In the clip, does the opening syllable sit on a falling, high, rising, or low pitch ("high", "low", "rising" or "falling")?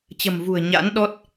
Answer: low